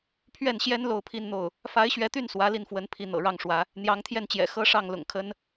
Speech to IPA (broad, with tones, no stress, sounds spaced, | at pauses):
pʰ ɥ ɛ˥˩ n ɕ j ɛ˥ n l o˥˧ ʊ̯ pʰ i˥˧ n n̪ o˥˩ ʊ̯ | f a˧˥ ɪ̯ ɕ ɥ ɛ˧˥ t̪ y˥˩ n s w ä˧˥ l i˥˩ n f w ə˧˥ n pʰ i˥˩ n̪ ɤ̰˨˩ ɻ ɑ˥˩ ŋ ʂ w ä˧˥ | n̪ j ɑ˧˥ ŋ t̪ʰ j ɛ˥˩ n t͡ɕ j ɛ̰˨˩ x ɤ˥ ʂ ɑ˥˩ ŋ l ʊ̰˨˩ ŋ kʰ ə˥ n